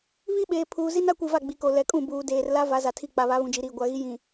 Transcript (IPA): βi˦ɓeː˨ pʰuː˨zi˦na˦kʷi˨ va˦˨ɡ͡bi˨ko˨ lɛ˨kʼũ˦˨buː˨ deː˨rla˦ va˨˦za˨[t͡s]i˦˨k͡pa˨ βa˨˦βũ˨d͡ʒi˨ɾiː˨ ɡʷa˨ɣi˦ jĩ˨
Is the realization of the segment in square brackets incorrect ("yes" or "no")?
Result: yes